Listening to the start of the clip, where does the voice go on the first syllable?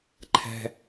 low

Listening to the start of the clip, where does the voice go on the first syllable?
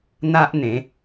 high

